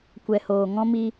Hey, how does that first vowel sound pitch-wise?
low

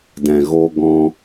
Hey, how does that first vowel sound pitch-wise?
low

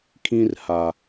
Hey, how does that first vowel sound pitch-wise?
high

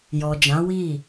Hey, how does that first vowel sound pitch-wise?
low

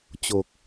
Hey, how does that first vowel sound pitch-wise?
low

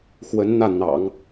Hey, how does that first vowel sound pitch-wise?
rising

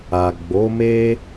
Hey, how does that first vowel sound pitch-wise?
low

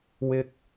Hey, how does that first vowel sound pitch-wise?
high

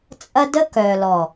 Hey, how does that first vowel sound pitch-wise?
high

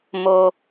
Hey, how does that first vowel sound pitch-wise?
low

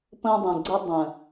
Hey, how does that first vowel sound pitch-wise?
high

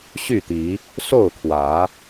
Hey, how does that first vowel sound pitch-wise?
falling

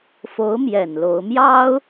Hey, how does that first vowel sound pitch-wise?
rising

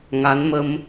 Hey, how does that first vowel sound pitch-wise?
rising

